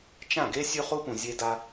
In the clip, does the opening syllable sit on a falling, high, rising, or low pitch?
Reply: falling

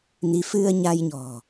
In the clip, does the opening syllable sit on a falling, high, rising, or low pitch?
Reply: rising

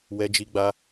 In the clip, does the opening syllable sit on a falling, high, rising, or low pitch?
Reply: high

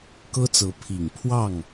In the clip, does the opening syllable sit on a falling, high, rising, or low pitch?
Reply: high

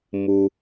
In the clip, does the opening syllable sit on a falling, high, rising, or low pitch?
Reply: low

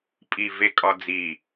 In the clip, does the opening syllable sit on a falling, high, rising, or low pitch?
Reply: low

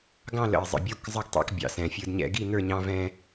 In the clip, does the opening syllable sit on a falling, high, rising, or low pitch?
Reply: falling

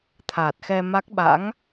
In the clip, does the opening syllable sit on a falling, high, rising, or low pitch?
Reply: low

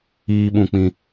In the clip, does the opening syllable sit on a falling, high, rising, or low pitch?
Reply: high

